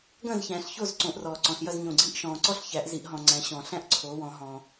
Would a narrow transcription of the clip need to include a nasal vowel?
yes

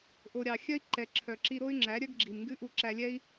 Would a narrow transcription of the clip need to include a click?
yes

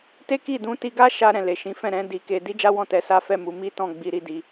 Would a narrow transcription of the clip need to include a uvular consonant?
no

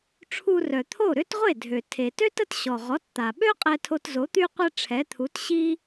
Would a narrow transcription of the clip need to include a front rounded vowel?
yes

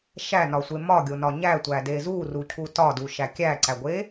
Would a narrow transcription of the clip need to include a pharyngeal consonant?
no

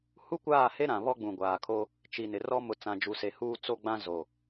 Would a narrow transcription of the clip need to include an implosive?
no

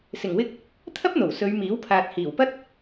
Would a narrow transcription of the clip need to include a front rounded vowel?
no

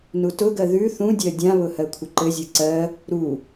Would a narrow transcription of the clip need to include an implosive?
no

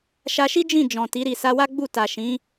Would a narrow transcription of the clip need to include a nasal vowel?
yes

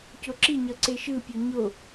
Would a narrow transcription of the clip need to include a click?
yes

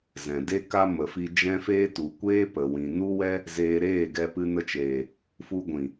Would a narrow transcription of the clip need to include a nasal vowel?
yes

